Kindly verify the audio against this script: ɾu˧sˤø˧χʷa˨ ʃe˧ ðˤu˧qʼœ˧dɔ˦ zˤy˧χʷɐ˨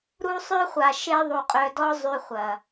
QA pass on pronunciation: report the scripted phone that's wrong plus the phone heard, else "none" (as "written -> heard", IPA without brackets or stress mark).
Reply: none